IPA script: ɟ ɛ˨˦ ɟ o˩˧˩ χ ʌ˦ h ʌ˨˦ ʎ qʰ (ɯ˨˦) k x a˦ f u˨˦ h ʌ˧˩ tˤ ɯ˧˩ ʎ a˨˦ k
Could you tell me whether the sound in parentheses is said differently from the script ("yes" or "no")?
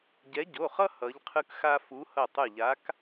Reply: yes